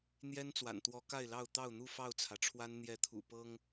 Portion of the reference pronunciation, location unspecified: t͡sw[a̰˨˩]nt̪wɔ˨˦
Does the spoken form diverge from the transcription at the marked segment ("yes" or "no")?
no